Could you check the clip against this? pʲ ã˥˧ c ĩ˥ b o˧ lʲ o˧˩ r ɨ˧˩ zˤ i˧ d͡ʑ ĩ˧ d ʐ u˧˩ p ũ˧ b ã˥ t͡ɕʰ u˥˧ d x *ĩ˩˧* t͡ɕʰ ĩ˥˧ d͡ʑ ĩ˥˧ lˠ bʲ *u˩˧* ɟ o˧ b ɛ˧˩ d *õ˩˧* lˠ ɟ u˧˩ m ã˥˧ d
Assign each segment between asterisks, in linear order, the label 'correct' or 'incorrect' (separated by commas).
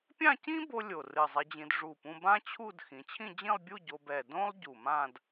correct, incorrect, incorrect